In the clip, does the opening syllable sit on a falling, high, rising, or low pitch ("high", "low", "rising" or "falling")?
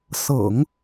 low